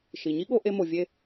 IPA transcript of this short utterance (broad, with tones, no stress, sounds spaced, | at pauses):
ʃ i˩ ɲ i˥ ɠ o˧ ʔ e˧ m o˩ vʲ e˧